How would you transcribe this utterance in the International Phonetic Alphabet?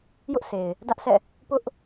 jʊ˦ʔse˨ɪ̯ | dä˦ʔsɛ̰˦˨ | pʊ˦ʔ

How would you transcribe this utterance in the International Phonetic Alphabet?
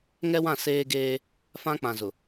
ŋɛ˦wã˦˨ seː˦ɡeː˦ | fã˦k͡pã˨zʊ˨

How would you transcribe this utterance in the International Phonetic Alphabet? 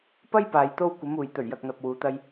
pɐ˥jpaː˨j t̪o˧wkʷɐ˨˧muː˨j t̪ɵ˨˩ɥjɐ˨k̚n̪ɐ˨p̚ wuː˨˧t̪ɐ˧j

